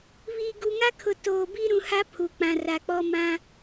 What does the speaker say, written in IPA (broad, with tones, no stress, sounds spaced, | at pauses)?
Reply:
β iː˨ ɡ u˨ ŋ a˦ kʰ ʊ˨ t oː˨ b i˦ ɾ ũ˨ h a˦ pʰ u˨ k͡p ã˨ r a˨ k͡p ɔ˦ m ã˦